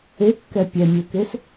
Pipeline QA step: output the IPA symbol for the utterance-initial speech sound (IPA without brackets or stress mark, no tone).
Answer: e